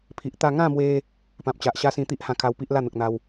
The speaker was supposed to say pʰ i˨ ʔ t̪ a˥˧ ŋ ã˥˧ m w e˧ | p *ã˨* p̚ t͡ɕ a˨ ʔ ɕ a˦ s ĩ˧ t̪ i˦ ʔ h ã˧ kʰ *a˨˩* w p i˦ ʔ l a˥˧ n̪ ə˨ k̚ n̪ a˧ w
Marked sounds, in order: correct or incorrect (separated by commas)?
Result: correct, incorrect